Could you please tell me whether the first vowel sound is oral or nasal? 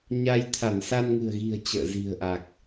oral